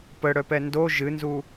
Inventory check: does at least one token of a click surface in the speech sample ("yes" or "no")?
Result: no